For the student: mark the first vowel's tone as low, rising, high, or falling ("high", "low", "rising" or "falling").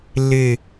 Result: falling